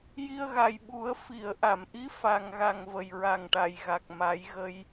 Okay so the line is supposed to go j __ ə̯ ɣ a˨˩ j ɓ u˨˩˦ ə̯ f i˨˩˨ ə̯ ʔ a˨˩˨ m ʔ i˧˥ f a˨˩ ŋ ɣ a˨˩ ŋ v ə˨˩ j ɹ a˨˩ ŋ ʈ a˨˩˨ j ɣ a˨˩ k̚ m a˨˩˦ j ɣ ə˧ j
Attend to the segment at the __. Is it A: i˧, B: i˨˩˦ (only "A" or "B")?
A